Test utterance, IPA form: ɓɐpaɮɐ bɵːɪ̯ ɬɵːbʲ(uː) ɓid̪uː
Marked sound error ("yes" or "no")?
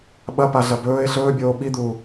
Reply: yes